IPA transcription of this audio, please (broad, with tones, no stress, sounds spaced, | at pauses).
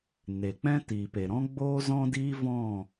n e˨ k͡p ɛ̃˦ t iː˨ p e˨ ɾ ɔ̃˦ ɡ͡b oː˦ z ɔ̃˦ d iː˦ v ɔ̃˦˨